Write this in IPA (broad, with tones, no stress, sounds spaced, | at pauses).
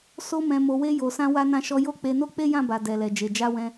s o˧ m ɛ̃˨ m o˨ w e˧ j o˨ s ã˧ w a˧ n ã˧ ʃ ɔ˧ j o˦ k͡p e˧ n o˦ k͡p e˦ j ã˦˨ b a˨ d ɛ˨ l ɛ˨ d͡ʒ e˨ d͡ʒ a˨˦ w ɛ̃˧